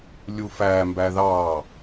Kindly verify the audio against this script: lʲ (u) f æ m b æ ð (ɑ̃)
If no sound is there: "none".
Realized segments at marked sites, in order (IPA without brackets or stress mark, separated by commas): u, ɑ